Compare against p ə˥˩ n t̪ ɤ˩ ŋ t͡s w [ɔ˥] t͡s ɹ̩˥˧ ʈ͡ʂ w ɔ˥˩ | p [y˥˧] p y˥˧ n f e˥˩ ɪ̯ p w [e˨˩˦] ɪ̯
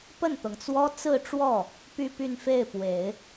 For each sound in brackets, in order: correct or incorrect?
correct, correct, correct

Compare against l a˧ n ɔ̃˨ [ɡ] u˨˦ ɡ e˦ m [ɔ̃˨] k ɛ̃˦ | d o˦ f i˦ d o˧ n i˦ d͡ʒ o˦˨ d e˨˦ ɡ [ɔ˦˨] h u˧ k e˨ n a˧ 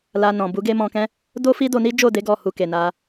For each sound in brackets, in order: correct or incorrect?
incorrect: b, incorrect: ɔ̃˧, correct

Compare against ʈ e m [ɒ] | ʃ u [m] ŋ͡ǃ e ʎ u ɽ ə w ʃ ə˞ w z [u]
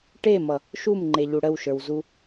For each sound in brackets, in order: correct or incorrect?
incorrect: ʌ, correct, correct

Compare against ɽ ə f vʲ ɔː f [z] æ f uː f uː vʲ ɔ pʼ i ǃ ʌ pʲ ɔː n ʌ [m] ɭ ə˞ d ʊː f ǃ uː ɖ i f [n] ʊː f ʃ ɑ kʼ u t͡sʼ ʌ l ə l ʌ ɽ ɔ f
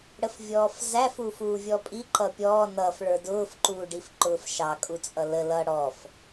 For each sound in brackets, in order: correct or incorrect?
correct, incorrect: f, incorrect: ǃ

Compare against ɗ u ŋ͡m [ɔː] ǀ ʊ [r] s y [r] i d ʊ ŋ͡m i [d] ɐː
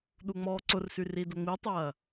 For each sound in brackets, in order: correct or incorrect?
correct, correct, correct, incorrect: tˤ

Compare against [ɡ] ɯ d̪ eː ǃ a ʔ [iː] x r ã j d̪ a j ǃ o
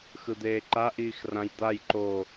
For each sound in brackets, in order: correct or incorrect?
incorrect: x, correct

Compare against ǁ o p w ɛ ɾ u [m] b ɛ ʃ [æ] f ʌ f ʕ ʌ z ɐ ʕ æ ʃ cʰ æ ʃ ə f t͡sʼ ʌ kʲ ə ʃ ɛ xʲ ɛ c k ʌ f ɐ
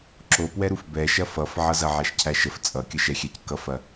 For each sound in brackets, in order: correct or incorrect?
incorrect: f, incorrect: ɐ

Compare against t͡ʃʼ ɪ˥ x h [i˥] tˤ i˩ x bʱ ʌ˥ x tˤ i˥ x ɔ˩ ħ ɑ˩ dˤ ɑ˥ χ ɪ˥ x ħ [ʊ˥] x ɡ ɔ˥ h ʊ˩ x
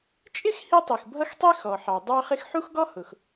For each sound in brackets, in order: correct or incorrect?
correct, incorrect: u˥

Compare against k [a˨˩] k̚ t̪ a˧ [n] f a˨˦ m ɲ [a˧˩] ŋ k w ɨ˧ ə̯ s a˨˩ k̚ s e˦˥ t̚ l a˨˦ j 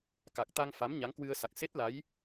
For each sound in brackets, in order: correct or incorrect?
correct, incorrect: ŋ, incorrect: a˨˦

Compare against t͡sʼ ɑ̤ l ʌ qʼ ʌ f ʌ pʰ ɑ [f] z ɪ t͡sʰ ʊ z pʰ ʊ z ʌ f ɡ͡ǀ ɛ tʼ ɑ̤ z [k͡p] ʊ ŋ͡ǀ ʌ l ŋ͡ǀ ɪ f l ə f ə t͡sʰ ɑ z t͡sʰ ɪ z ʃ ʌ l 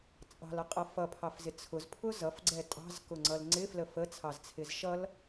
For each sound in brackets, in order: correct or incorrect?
correct, incorrect: k

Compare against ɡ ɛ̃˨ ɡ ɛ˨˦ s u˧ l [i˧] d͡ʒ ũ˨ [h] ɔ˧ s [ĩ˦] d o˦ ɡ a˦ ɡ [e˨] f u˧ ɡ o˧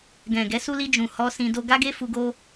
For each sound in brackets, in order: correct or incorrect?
correct, correct, incorrect: ĩ˧, incorrect: e˦

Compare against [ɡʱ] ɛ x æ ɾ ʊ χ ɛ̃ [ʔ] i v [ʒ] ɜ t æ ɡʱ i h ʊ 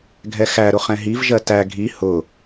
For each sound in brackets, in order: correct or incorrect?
correct, incorrect: ɦ, correct

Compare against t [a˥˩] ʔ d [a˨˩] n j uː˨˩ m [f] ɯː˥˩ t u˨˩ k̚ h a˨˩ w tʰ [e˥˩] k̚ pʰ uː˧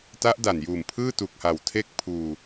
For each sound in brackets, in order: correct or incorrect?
incorrect: a˦˥, correct, incorrect: pʰ, correct

